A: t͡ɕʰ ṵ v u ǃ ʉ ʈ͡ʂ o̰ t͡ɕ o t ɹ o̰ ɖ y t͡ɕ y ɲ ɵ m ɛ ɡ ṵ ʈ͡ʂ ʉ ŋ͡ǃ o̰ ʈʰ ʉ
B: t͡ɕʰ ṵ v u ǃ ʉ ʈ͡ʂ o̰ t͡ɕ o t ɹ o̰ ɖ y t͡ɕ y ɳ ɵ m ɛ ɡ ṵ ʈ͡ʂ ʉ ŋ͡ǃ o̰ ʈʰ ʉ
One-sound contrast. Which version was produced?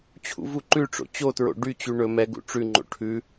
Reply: B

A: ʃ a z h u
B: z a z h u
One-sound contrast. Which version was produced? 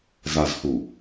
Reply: B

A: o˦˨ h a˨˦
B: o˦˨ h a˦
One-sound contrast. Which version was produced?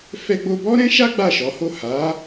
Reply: A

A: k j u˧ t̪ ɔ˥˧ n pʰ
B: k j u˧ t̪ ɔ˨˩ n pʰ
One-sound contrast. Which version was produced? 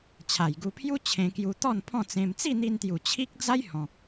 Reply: A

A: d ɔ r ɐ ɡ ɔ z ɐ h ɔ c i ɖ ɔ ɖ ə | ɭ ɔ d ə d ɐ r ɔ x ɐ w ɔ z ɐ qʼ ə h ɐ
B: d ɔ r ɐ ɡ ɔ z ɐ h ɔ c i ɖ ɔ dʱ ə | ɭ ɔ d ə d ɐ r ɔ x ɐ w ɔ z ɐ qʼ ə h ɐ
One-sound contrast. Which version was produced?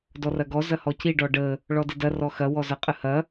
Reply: A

